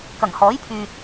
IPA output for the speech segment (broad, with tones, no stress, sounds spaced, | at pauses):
k ɐ˨˩ ŋ h ɔː˨˥ j pʰ yː˨ t̚